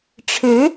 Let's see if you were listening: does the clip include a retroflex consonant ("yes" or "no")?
yes